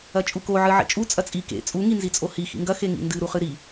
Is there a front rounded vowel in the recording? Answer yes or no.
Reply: no